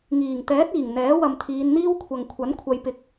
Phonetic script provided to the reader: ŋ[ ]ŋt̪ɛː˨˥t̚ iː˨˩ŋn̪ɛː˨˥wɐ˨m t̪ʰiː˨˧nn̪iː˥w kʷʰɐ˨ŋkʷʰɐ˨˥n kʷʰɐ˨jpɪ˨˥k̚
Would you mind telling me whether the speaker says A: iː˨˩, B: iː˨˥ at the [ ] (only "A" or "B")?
A